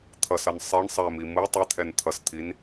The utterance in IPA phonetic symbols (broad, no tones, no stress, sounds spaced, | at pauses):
t̪ʰ ʌ s ʌ n sˤ e ɳ sˤ ɛ m i m ɯ tˤ ɛ t̪ʰ ɛ n t̪ʰ ʌ s t̪ʰ i n